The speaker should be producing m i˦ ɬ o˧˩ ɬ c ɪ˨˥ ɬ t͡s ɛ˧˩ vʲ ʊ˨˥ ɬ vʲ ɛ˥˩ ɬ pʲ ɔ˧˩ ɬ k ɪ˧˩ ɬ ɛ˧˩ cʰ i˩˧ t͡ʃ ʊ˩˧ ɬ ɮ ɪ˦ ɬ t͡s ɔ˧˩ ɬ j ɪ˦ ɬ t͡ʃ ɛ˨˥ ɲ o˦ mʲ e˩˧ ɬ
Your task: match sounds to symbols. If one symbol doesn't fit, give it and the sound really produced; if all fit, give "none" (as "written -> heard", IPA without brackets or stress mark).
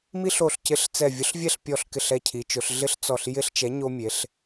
none